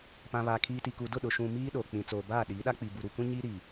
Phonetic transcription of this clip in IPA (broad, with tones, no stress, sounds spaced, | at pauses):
p ã˨ β a˨ kʰ iː˨ t i˨ k u˨ d ʊ˦˨ ɗ ʊ˨ ʃ ũ˨ m iː˦ ɗ o˨ k͡p ĩ˨ t͡s oː˨ b aː˦˨ ɗ iː˨˦ ɗ a˦ k͡p i˨ b u˨ ɾ u˨ kʷ ĩ˦ ɲ iː˦ ɾ i˨